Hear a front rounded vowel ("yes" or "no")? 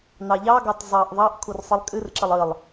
no